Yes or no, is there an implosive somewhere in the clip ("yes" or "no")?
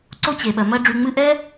yes